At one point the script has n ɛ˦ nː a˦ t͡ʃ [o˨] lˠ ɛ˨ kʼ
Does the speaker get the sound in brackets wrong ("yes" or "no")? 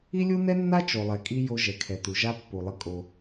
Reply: no